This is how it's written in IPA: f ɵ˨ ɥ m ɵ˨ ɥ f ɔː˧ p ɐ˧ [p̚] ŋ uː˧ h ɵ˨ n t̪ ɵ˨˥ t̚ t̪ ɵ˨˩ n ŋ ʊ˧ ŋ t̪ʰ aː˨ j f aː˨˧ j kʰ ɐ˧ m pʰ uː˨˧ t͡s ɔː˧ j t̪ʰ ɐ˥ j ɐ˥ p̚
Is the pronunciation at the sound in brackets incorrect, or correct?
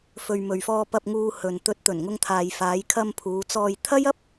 correct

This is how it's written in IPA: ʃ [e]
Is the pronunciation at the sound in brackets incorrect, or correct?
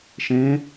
incorrect: ẽ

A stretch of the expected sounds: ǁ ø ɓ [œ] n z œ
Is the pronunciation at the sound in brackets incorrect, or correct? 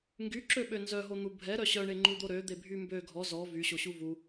incorrect: ø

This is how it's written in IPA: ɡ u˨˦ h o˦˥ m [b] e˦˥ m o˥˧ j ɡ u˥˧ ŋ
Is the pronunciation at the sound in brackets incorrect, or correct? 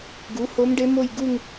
incorrect: ɖ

